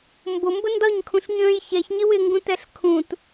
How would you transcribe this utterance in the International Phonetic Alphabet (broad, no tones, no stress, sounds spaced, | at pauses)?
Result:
m b ʊ m b ə n d ɒ ɲ kʰ ũ ɬ ɲ ə̃ː j ç ɛ ç ɲ ɪ w ɪ ŋ ɡ ũ t ɛ ɬ kʰ ũ t